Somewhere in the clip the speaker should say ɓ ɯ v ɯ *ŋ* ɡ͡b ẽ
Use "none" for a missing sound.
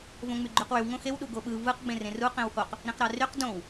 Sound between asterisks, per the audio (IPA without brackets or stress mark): q